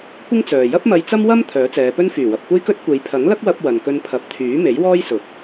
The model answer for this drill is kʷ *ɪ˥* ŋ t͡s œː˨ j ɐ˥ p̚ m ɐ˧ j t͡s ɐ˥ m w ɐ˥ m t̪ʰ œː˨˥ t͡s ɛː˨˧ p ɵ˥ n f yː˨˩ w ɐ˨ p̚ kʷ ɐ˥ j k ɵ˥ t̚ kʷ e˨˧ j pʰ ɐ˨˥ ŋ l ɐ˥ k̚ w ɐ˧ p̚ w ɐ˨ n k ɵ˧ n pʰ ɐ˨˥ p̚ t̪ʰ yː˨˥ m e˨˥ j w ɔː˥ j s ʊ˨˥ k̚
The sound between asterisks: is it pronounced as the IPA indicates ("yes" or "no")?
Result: yes